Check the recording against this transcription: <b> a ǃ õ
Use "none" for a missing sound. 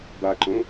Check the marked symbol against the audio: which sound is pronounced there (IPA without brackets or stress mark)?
b